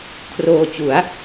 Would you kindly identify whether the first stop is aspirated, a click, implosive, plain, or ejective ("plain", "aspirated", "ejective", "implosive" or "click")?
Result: aspirated